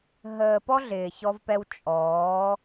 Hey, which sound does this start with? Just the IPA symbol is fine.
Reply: ɦ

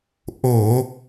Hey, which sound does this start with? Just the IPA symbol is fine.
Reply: ʔ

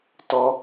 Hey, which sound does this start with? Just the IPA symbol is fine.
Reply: t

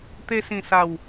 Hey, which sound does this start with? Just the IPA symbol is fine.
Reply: t̪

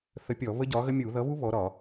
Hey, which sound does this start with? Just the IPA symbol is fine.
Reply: θ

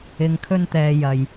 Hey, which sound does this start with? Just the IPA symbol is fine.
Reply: ɪ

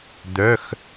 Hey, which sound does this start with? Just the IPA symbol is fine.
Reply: d̪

